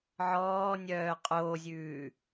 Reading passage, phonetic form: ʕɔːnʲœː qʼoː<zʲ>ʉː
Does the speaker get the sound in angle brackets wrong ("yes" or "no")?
no